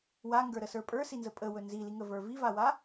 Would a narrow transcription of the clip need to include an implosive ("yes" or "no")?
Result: no